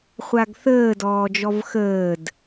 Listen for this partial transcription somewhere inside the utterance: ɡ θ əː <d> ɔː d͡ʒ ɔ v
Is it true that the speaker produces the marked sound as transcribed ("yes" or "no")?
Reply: yes